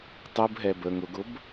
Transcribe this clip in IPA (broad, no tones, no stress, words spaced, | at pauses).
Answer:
tˤubɦɛ bə ŋʊɡʊb